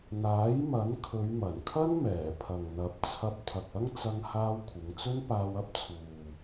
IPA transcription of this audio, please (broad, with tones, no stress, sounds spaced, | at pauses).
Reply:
n̪ aː˨˥ j m ɐ˨˥ n kʰ ɵ˨˧ ɥ m ɐ˨˩ n kʰ ɐ˥ n m ɛː˨˩ pʰ ɐ˨ ŋ n̪ ɐ˨˥ p̚ t͡sʰ ɐ˧ p̚ t̪ʰ ɐ˨ k̚ ɐ˥ ŋ t͡s ɐ˧ ŋ h aː˧ w kʷʰ ɪ˨˧ ŋ t͡s ɵ˥ n p aː˧ w ɐ˥ p̚ t͡sʰ uː˨